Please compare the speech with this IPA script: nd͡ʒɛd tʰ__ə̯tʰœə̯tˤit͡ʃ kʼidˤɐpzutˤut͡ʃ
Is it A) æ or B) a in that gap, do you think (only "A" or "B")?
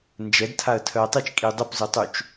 B